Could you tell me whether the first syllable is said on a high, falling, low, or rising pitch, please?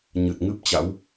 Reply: low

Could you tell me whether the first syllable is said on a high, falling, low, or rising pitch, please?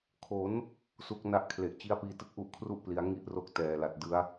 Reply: rising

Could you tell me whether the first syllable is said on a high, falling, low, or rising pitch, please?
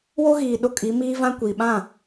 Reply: high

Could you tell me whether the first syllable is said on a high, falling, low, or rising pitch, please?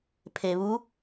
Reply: low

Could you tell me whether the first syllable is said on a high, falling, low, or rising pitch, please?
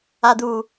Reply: low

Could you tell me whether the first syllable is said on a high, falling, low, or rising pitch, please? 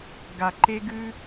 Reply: low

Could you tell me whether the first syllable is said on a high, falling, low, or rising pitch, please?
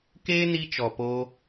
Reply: high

